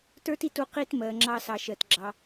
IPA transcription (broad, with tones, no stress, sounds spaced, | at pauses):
t ə˞˦ t i˧ t u˧ q i˦ t m ɜ˨ ŋ͡ǁ ɑ˧ s ɑ˨ ʃ ɜ˨ t ɡ͡ǁ ɑ˧